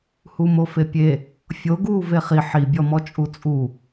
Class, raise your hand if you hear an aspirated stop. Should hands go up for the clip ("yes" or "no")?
no